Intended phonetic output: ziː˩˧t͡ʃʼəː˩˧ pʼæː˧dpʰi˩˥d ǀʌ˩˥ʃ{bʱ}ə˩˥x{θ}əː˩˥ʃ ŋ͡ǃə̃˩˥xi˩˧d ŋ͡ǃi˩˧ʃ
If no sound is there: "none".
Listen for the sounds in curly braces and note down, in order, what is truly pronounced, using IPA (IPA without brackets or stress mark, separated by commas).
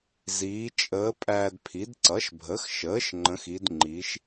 bʱ, ʃ